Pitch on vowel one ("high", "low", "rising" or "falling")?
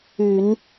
low